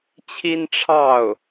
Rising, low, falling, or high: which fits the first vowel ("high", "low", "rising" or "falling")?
high